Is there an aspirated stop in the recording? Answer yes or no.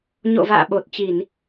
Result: no